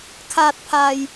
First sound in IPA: kʰ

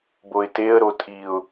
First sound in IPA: b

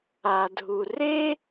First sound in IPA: a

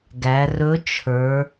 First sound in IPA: ɡ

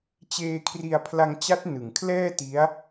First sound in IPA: t͡ɕ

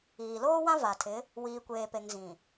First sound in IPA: iː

